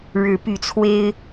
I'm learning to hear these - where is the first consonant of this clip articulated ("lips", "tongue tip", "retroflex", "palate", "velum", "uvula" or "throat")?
retroflex